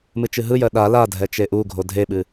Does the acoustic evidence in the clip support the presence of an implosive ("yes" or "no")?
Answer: yes